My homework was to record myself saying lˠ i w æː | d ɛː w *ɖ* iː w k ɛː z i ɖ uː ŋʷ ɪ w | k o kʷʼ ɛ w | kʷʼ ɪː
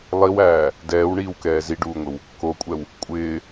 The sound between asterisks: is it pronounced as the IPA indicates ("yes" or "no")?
no